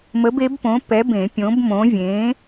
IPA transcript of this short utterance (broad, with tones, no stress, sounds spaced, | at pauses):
m ə˨˥ b e˨˥ b p õ˨˥ p ɛ˨˥ b ẽ˨˩˦ pʲ õ˨˥ b m õ˨˥ vʲ ẽ˨˥